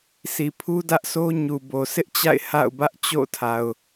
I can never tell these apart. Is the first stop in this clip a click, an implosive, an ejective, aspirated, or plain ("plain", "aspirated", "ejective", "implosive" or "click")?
aspirated